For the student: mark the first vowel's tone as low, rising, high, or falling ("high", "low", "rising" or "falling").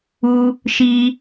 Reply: low